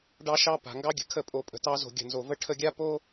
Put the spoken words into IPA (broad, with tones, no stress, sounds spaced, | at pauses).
ɖ ɑ˦ ʃ ɑ˦ p a̤˨ ŋ ɡ ɑ˦ ɡʲ ə̤˨ kʰ ə˦˨ pʼ o˨ pʼ ə̤˨ t ɑ˧ z o̤˨ ɡʲ ə̤˨ n z o˨ v ə˦ ʈʰ ə˧ ɡʲ a˦ p o˦